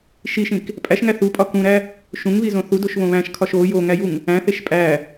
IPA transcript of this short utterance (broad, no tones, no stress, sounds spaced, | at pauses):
ʃ i ʃ ĩ k | pʼ æ ʃ ŋ æ θ u pʼ ɒ k ũ ɾ æ | ʃ ũ ŋ β i z õ θ u d o ʃ β õ β æ̃ ʃ kʰ ɒ ʃ o j o ŋ æ j u ŋ | æ̃ θ e ʃ pʼ æ